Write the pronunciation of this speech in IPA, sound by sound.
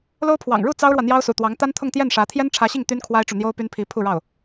lo˥ʊ̯pʰwɑ̰˨˩ŋ ɻu˥˩ t͡sɑ˥ʊ̯ɻwä˨ n̪jɑ˥ʊ̯sṵ˨˩t̪wɑ˧˥ŋ t̪a˥nt̪ʰʊ˥˧ŋt̪jɛ˥˩nʂä˧˥ t̪ʰjɛ˥nʈ͡ʂʰä˧˥ɕi˥˩ŋ t̪y˥nkʰwa˥ɪ̯ʈ͡ʂu˨ n̪jo˥ʊ̯py˥npʰi˧˥ pʰu˥˧ɻɑ˥˩ʊ̯

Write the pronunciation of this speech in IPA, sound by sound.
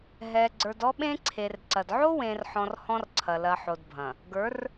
ɦɛ˨ɡ͡ǀə˞˨d ɔ˦ɓẽ˦ǀʰe˨rǀɐ˨d ʕo˦wẽ˨rħɔ̃˨r hɔ̃˦rǀʰɐ˨ lɐ˨ħo˨dbʱɐ̃˨ | ɡə˞˨˦r

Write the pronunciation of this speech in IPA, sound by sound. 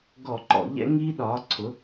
ɡɔ˧˩˧ǃɔ̰˧˩˧ʎɛ̰˦ ŋiː˦ɗɒː˩˥ǀʰʊ˩˥

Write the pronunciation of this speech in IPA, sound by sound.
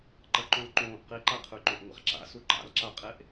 ǃɐǃõlǃõːʔ qiǃaqʰʉǃõʔ ŋʷa̰χǁa̰su ǃa̰lǁaqʼeʔ

